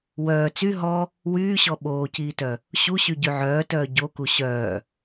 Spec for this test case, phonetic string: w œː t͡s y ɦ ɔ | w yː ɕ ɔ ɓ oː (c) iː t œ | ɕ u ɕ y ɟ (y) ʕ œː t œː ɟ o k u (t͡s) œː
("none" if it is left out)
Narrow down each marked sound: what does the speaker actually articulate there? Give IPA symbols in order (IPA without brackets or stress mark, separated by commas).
c, y, ɕ